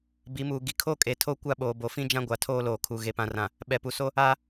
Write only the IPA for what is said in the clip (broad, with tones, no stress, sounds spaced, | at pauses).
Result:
b i˨˦ m uː˨ ɡ i˨ kʰ o˦ kʼ e˨ tʰ o˦ kʷ a˦ ɓ oː˨ b o˨ f ĩ˦ d͡ʒ ã˦ ɡʷ a˨ tʰ oː˦ l oː˨ kʰ u˨ ɣ e˨ p ã˨ r ã˨ | ɓ ɛ˨ p u˨ s o˦ | a˦